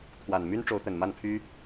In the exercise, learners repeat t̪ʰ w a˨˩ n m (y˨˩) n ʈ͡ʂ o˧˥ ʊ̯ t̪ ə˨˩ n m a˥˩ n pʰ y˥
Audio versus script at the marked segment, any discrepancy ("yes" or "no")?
yes